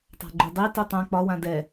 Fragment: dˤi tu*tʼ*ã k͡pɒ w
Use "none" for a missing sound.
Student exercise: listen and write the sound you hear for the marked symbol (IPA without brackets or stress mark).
tˤ